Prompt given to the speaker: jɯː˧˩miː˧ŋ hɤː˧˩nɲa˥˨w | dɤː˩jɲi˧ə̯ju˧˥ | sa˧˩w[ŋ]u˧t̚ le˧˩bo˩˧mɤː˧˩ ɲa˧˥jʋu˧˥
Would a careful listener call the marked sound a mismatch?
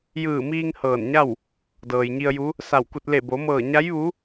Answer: yes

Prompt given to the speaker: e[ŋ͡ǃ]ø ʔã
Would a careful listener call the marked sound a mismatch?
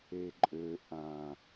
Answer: yes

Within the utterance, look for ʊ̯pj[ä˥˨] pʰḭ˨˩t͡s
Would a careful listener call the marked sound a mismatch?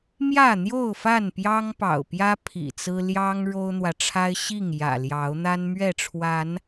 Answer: yes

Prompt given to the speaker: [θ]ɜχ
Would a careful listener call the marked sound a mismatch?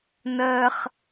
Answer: yes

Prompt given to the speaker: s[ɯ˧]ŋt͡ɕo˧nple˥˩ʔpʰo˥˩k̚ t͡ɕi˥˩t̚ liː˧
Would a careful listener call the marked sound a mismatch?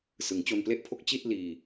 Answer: yes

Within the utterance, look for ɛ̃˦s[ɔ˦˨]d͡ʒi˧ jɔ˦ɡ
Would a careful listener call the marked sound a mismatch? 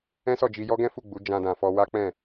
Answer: no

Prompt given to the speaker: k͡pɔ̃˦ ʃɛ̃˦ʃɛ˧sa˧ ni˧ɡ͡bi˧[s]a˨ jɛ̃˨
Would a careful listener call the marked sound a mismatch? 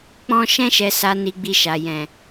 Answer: yes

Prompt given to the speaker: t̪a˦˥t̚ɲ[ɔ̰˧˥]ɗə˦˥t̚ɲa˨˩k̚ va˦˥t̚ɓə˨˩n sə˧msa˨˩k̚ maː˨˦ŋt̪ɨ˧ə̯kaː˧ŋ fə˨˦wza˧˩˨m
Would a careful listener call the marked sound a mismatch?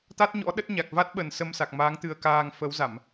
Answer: no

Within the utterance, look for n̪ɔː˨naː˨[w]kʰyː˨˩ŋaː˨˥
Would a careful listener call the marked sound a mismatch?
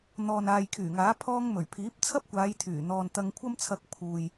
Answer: yes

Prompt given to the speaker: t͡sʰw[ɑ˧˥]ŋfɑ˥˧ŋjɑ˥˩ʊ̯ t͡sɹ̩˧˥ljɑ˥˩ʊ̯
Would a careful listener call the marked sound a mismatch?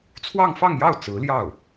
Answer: yes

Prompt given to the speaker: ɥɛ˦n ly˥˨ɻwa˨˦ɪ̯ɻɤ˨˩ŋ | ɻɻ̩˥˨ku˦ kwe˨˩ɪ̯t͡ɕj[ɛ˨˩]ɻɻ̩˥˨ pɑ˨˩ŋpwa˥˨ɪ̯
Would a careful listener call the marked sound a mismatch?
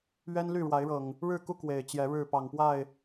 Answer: yes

